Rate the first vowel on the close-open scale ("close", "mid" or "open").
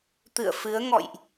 close